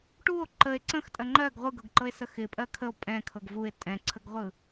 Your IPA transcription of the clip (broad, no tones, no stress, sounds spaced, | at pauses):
ʈ u o̯ ǃ ə e̯ ǀ ə̃ x tʼ ɜ ŋ͡ǃ ɜ ɡ ʁʷ ɯ ɡ ɤ ɡ ǃ ɤ e̯ s ə x ɪ pʼ ɜ kʰ ə o̯ pʼ ɛ̃ kʰ ɤ ɡ v u e̯ tʼ ɛ̃ ǀʰ ə ɡ ʁʷ ɯ